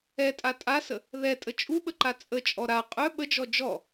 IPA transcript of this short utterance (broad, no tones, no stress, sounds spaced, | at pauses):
ɛ tʼ a tʼ a s ə | ð ɛ tʼ ə t͡ʃʼ u ɓ ə ǃ a t͡sʼ ə t͡ʃʼ ɔ ɾ a qʼ œ ɓ ə d͡ʒ ɔ d͡ʒ ɔ